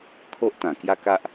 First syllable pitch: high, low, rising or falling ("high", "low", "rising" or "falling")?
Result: high